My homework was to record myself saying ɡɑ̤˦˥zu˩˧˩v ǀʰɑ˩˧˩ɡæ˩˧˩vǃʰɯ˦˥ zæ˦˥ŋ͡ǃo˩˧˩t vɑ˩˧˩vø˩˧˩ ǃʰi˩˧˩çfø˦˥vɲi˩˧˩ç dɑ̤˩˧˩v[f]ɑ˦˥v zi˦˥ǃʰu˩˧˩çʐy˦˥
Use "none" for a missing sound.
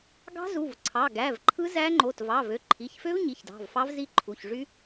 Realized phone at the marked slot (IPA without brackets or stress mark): f